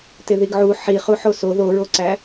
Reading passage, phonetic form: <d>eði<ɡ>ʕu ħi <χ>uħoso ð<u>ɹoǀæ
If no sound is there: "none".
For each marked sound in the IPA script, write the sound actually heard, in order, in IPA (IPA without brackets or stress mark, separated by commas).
t, ɡ, χ, o